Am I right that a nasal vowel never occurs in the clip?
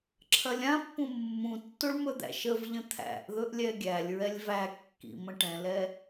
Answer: no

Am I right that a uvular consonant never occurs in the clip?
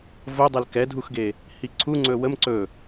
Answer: yes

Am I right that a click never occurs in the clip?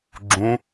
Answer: no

